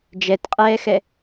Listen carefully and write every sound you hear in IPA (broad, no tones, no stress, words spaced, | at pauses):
d͡ʒɛtqʼɛːxɛ